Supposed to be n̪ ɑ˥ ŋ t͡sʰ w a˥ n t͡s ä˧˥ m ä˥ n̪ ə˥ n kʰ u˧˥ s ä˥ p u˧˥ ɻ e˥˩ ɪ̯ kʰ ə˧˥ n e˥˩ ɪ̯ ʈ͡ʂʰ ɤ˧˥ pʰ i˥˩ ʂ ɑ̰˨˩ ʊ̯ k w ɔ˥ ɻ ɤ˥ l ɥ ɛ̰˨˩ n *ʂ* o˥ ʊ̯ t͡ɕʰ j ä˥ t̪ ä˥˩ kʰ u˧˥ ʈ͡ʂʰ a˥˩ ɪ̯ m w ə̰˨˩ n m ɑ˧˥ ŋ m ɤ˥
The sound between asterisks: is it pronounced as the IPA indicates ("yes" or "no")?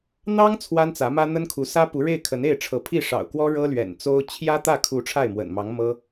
no